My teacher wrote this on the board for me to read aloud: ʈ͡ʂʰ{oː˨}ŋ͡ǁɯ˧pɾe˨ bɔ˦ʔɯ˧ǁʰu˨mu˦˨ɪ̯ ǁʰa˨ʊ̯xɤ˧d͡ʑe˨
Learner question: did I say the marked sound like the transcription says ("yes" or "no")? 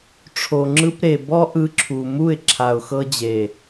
no